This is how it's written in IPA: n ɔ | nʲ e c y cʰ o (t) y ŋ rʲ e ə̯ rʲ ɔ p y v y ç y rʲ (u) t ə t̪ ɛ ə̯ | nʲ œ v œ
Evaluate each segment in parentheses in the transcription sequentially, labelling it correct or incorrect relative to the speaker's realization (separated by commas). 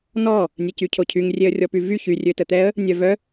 incorrect, incorrect